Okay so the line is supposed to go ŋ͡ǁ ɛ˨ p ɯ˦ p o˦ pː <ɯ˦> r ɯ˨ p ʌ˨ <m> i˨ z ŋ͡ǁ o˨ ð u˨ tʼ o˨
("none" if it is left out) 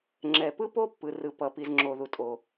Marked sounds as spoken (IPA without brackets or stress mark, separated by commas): ɯ˨, p